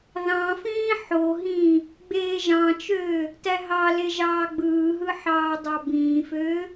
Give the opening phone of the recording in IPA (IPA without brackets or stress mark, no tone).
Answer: ð